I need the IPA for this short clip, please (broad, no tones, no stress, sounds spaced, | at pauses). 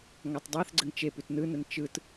ŋ a tˤ dˤ ɑ θ ɡ͡ǀ ə ŋ t͡ʃ e p ʉ t n ɯ n ə n t͡ʃ ɯ t